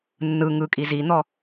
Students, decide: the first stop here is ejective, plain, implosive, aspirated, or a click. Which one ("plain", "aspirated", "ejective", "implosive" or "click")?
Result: ejective